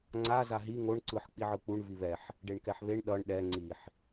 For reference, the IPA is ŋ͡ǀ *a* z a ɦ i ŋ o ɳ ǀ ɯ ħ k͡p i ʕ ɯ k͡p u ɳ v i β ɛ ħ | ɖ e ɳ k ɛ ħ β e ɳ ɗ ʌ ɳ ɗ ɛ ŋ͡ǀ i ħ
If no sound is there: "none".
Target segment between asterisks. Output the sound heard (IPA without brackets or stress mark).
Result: a